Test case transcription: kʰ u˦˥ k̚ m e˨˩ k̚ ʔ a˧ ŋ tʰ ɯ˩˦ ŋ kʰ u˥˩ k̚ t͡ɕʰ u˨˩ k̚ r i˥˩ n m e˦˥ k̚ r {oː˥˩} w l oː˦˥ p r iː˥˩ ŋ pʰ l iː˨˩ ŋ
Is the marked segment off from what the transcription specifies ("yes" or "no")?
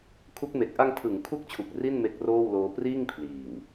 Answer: no